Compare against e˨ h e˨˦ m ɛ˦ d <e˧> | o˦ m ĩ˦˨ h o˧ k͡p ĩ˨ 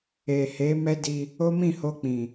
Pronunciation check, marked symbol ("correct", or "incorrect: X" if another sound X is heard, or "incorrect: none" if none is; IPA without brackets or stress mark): incorrect: i˧